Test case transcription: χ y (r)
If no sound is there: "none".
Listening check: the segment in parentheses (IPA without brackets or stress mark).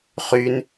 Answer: n